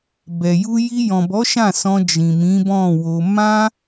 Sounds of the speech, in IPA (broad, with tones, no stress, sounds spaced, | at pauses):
b ɛ˨ j u˧ j i˧ j ɔ̃˨ b ɔ˨˦ ʃ ã˦˨ s ɔ̃˧ d͡ʒ ĩ˨ m ĩ˨˦ b ɔ̃˦˨ w o˧ m ã˦